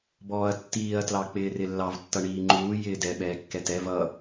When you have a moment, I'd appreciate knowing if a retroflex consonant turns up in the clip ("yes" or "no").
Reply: yes